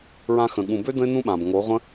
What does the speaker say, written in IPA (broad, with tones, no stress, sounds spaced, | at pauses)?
ɹ ã˧ x ə̃˨ ɠ ũ˨ b ø˦ d ə̃˦ ɪ̯ n ũ˦ ɓ ã˨ b ŋ o˨˦ ʁʷ ə̃˦